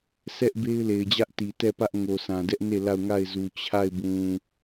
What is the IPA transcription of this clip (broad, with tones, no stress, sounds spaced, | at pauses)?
sʰ ɛ˦ ʔ b e˦ ɪ̯ l e˨ ɪ̯ d͡ʑ ä˦ ʔ t i˨ t ɛ˦˨ p ä˦ ʔ ŋ o˨ sʰ ã˨ d ɛ˦ ʔ n e˦˨ l a˦˨ ʊ̯ ŋ a˦˨ ɪ̯ z u˨ t͡ɕʰ a˦˨ ɪ̯ b ũ˨